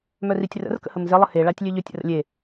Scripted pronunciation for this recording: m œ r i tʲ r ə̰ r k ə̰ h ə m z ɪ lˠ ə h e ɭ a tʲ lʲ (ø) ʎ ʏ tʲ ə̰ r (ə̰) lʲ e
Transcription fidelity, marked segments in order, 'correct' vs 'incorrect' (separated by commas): correct, correct